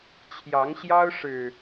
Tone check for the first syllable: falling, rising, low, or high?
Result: rising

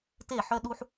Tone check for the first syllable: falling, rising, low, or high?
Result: falling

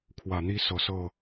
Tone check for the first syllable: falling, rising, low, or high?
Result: low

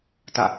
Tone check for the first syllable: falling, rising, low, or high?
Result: falling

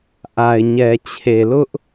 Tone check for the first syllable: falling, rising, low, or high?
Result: low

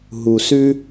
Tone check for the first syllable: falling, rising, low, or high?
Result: low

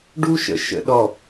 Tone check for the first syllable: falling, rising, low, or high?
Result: high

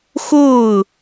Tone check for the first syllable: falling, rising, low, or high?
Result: falling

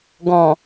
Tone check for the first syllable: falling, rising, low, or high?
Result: low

